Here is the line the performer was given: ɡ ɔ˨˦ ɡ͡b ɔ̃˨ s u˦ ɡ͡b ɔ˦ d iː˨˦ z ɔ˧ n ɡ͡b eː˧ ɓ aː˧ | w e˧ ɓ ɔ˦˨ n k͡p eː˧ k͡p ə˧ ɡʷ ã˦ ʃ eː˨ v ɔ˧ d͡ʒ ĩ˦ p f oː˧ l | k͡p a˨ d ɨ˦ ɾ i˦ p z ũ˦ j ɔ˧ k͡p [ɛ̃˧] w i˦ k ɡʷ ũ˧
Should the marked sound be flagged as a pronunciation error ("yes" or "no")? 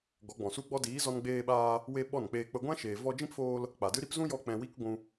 no